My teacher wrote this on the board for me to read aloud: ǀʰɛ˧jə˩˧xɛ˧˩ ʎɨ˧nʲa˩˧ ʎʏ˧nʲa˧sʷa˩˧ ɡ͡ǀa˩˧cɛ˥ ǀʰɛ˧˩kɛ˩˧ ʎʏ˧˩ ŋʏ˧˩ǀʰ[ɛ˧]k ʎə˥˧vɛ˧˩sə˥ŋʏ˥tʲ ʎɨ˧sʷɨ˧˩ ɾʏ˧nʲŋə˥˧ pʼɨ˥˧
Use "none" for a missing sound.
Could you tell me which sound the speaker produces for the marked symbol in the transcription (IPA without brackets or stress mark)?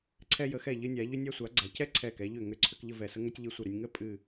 ʏ˧